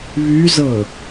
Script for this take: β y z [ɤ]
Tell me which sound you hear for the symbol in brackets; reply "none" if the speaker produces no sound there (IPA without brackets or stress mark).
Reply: ɤ